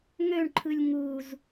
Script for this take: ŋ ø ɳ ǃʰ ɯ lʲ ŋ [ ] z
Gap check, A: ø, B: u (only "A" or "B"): B